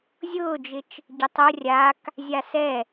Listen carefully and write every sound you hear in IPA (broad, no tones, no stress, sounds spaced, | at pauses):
zʲ ʊː d͡ʒ ɪ t͡ʃ | ɟ ɪ tˤ ʊ rʲ a k | zʲ a s ɛ